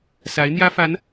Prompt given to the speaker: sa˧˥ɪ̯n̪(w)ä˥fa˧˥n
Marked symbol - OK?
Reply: no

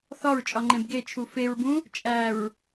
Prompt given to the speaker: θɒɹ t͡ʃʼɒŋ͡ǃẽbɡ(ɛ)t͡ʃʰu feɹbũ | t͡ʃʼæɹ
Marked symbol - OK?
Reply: no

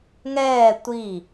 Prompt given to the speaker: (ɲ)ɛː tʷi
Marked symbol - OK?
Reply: no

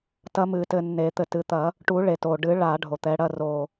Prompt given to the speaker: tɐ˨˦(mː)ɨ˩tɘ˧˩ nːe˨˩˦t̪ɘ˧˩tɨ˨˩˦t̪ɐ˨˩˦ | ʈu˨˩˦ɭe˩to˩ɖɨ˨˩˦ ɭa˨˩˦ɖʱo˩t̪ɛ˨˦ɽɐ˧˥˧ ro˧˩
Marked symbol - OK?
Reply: no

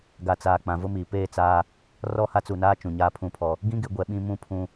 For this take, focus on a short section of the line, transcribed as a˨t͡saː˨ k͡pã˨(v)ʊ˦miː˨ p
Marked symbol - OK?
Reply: yes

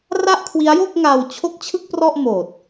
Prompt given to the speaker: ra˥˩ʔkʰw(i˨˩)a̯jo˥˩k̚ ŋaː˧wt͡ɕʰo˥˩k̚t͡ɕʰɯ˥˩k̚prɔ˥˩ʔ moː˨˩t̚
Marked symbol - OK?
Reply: no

